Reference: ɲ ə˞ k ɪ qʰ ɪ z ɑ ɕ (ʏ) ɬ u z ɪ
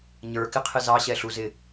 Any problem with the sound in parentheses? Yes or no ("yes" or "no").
yes